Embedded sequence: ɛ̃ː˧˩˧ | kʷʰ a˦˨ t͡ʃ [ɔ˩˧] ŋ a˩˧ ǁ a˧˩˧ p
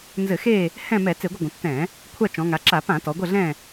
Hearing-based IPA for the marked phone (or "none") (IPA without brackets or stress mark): ɔ̃˩˧